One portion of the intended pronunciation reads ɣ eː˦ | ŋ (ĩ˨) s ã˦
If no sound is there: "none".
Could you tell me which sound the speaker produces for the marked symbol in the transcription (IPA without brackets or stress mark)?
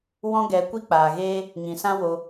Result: ĩ˨